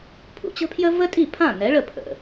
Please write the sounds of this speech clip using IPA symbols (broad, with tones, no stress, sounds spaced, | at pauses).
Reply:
pʰ ṵ˩ t͡ɕ ə̤˥ pʰ j ə˥ v ə˥ tʼ i˥˩ pʰ ã˥˩ n ɛ˩˥ ɭ ə˥˩ pʰ ə̰˩